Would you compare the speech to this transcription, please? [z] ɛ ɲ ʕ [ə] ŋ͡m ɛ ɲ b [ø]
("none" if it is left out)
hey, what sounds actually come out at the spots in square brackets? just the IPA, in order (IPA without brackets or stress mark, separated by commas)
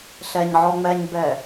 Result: ɬ, ɔ, ɛ